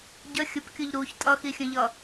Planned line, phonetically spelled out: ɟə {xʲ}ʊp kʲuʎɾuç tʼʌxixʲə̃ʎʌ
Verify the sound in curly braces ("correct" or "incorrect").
correct